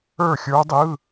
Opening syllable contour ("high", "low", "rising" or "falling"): falling